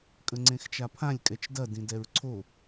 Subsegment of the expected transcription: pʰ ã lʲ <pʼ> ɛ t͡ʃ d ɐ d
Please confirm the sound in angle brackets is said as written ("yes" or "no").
no